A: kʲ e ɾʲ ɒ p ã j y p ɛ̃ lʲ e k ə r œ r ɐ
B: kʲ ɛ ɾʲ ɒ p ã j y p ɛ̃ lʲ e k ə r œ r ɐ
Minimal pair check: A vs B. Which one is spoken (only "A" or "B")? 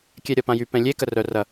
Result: B